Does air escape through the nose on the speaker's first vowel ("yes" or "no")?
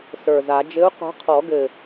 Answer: no